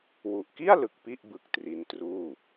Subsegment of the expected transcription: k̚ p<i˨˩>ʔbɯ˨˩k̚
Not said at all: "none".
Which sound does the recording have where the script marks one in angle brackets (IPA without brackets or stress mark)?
i˥˩